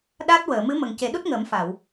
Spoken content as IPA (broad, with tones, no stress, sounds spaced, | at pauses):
ɗ a˦˥ t̚ w əː˨˩˨ m ɨ˧˥ m ə˨˩ ŋ c e˨˩˦ ɗ u˦˥ t̚ ŋ əː˨˩˦ m f a˨˩˨ w